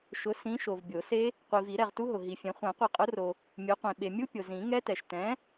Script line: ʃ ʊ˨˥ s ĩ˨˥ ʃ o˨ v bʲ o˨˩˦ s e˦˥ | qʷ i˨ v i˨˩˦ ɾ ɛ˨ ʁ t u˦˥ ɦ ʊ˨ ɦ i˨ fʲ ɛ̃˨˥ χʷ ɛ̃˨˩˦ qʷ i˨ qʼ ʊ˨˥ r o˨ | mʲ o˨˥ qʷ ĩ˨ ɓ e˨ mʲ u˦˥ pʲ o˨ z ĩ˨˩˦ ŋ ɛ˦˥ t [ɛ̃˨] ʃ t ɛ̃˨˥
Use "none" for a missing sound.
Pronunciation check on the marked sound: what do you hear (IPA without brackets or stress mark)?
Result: ɛ˨